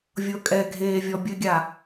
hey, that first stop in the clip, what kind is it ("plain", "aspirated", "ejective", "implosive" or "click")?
ejective